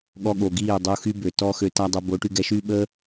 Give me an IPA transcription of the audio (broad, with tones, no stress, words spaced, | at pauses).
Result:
ɠɔ˧ɠo˨ɡiː˦˨ dˤu˧xy˦bø˨ tɔː˦xø˧ta˦dˤo˧ bo˨˦ʈy˧ɡɛ˧ʃyː˦ ɓə˦